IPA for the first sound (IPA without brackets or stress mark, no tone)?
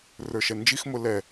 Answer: r